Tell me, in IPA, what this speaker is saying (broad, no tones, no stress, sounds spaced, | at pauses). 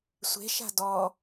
sʷ e̤ ʃ a̤ d ɔ